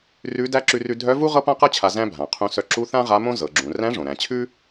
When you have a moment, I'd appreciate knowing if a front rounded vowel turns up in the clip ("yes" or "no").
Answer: yes